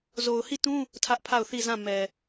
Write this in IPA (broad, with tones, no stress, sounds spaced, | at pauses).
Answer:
z o˨ ʊ̯ h i˦˨ t ũ˦ | tʰ ä˦ ʔ pʰ a˦˨ ʊ̯ θ i˦˨ z ã˦˨ m ɛ˨